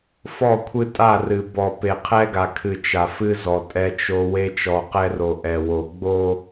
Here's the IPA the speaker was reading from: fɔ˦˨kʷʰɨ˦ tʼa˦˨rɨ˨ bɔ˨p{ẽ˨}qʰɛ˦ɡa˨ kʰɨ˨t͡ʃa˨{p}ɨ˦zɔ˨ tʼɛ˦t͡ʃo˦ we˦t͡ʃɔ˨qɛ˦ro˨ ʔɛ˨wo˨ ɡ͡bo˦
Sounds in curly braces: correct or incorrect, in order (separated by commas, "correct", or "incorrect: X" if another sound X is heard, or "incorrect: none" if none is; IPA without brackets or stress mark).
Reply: incorrect: e˨, incorrect: f